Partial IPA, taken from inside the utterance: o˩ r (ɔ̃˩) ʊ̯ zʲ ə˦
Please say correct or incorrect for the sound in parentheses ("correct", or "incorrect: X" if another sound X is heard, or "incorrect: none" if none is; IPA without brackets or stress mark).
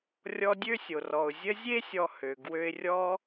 incorrect: ɔ˩